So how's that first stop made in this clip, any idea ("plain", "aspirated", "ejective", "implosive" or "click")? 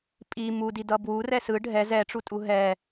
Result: ejective